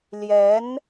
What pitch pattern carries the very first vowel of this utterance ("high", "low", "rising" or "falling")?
rising